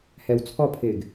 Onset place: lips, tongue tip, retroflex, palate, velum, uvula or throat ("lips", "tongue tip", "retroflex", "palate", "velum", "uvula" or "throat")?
throat